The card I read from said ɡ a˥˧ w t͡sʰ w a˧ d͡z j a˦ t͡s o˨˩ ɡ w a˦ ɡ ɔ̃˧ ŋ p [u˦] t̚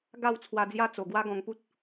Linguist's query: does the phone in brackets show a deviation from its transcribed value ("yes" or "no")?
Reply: no